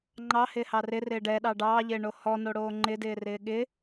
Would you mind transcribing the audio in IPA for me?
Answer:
ŋ͡ǃ ɑ h ɪː h ɑ r ɪ r ɪː ɖ ɛ ɗ ɑ ɖ ɑː ʎ ɪː ɳ o h ɔ n o ɽ oː ŋ͡ǃ ɪ d ɪː r ɪː ɠ ɪ

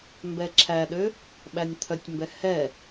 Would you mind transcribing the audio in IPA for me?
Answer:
m b ɛ ǁʰ æ ɗ ø | ɓ æ nʲ t̪ʰ œ tʲ m b ɛ h ɛ

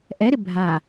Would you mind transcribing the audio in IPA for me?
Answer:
ʔ ɛ ɾ ɪ bʱ a

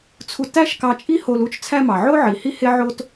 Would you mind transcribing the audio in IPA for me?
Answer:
t͡sʰ u˧ t æ˥ ʃ k ɑ˧ t͡ʃʼ i˥ h o˧ l u˥ t͡ʃ t͡sʰ æ˧ m ɑ˩ ʕ o˥ ʕ i˩ h i˥ h e˥ ʕ o˧ t

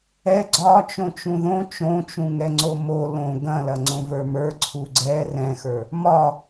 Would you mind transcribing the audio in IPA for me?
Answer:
ɛ ɡ͡ǀ ɒ t͡ʃ õ t͡ʃ ũ ð õ t͡ʃ õ t͡ʃ ũ ŋ ɛ ŋ͡ǀ o m o l õ ɡ ɐ̃ l ɐ ŋ͡ǀ õ v ə˞ m ə˞ ǀʰ u ɡ͡ǀ ɛ r ɛ̃ x ə˞ | m ɒ

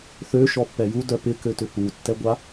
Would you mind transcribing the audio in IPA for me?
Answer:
θ ø ʃ ɔ pː ɛ j u d œ p ɪ k ø t ʏ p u tː ɛ ɡʷ a

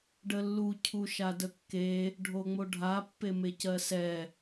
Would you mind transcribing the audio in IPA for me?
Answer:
ɖ ə lː u cʰ u ʃ a d ə kː e | ɖʱ o ŋ͡m o ɖʱ a pː e m e c ɜ s ɛ

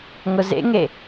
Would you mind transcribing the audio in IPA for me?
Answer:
ŋ ʊ z ḛ ŋ e

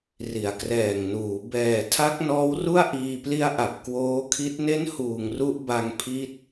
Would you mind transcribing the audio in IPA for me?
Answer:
r i˩˦ a̯ k r ɛː˨˩ ŋ n uː˩˦ b ɛː˨˩ tʰ a˦˥ k̚ n ɔː˦˥ w r u˥˩ a̯ ʔ iː˧ p l i˦˥ a̯ ʔ a˨˩ p̚ k w oː˦˥ kʰ i˦˥ t̚ n e˦˥ n h uː˨˩ ŋ r u˦˥ ʔ b a˧ ŋ pʰ i˦˥ t̚

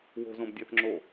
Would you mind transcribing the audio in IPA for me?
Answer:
w o̤ z õ b dʲ æ θ ŋ͡ǁ o

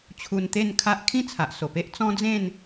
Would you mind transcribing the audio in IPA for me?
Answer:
t͡ɕʰ u˧ n t̪ e˥˧ n kʰ a˦ ʔ kʰ ĩ˥˧ t͡sʰ a˨ ʔ s o˨˩ p e˦ ʔ t͡s ɔ̃˦ d͡z ẽ˥˧ n

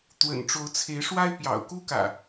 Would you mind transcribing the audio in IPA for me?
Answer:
t̪ w ə̰˨˩ n ʈ͡ʂ o˨˦ ʊ̯ t͡sʰ e˨˦ ɪ̯ ʂ w a˦ ɪ̯ p j ɑ̰˨˩ ʊ̯ k u˦ k ä̰˨˩

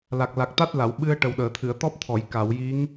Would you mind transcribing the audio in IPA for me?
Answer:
l a˨˩ k̚ l a˨˩ k̚ t̪ a˦˥ t̚ l a˨˩˨ w ɓ ɨ˧ ə̯ ʈ ə˨˩ w ɗ əː˨˩˨ t̪ʰ ɨ˨˩˨ ə̯ t̪ ɔ˦˥ p̚ t̪ʰ ɔ˨˩˨ j k a˨˩˨ w j i˧˥ ŋ

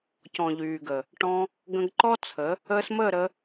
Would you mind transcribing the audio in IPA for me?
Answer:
c ɔ̃˨ ʎ yː˨ ɡ ə˨ | ʈ ɔ̃˧ | ɡ ə̃˧ ɡ ǃ ɔ˦ t͡sʰ ə˨˦ | əː˧ s m əː˦˨ ɾ ə˧

